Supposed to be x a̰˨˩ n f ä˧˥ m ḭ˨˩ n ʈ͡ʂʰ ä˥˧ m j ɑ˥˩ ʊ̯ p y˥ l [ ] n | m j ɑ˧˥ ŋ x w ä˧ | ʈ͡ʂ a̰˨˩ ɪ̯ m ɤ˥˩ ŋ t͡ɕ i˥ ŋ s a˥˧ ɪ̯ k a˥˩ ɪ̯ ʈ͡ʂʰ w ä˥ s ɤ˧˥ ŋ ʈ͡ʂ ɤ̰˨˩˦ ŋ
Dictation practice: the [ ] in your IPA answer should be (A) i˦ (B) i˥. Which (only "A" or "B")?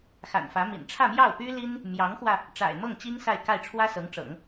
B